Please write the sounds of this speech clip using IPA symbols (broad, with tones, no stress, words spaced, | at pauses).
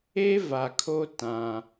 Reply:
e˦va˨kʰo˦ tã˦